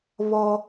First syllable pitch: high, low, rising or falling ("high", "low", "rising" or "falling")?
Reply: high